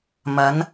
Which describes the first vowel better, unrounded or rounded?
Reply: unrounded